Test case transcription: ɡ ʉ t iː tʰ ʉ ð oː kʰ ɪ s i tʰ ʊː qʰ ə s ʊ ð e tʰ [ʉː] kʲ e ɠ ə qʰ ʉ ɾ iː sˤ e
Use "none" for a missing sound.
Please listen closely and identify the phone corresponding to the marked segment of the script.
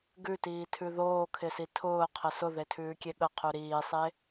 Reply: ʉː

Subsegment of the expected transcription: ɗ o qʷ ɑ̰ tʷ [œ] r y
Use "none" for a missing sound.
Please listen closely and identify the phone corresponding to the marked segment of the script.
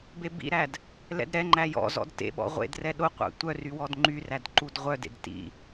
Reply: œ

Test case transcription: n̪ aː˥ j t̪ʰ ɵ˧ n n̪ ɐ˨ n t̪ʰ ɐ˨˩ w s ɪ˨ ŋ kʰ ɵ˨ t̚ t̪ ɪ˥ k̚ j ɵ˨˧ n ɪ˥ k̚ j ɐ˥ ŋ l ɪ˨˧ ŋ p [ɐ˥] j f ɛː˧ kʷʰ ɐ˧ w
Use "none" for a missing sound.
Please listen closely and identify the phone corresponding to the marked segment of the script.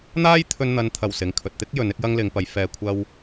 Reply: ɐ˨˧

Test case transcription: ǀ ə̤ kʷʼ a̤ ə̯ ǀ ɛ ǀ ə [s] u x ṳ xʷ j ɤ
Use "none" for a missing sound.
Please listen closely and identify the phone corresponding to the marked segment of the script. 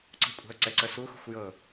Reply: s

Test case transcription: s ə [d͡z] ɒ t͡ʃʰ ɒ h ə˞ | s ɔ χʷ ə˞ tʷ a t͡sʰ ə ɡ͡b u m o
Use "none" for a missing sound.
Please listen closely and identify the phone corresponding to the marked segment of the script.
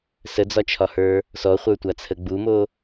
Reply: d͡z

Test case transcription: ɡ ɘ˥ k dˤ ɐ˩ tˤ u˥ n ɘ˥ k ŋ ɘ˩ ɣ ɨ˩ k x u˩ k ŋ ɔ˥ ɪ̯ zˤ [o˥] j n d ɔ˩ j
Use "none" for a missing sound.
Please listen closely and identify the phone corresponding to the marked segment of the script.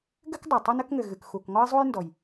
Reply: u˥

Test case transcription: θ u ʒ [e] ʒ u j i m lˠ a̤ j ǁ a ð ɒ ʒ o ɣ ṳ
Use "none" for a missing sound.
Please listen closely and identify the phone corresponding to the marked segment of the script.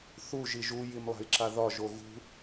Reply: i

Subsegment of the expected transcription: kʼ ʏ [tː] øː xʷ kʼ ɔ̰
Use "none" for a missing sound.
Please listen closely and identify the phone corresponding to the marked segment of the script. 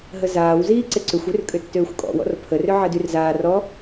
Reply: tː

